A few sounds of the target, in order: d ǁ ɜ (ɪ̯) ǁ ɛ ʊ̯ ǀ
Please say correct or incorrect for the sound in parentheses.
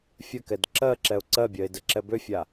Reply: incorrect